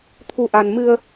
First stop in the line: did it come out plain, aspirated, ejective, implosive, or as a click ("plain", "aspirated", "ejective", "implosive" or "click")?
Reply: aspirated